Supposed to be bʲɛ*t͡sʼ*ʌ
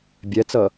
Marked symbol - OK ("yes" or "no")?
no